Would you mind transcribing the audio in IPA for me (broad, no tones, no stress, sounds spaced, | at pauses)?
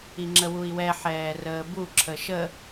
i ŋ͡ǁ ə w u i̯ w ɛ ħ ɛː r əː b u ǁʰ ə ʃ ə